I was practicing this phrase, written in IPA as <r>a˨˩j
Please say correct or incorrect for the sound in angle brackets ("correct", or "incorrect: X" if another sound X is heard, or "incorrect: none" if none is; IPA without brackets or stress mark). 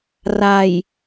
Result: correct